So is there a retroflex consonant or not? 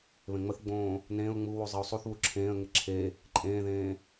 no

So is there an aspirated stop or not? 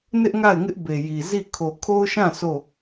yes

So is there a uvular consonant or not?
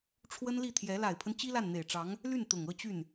no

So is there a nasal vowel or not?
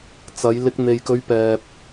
no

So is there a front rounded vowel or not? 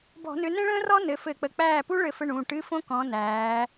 yes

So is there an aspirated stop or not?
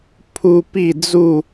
yes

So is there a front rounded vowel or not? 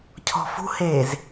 no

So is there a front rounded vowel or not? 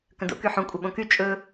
yes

